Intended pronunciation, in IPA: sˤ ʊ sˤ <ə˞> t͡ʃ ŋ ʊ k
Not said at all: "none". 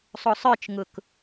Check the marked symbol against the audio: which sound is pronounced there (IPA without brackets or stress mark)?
ə˞